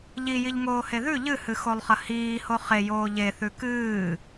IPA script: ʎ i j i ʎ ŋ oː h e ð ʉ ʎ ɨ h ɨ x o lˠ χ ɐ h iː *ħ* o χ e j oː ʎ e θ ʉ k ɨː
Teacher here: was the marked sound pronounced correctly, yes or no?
no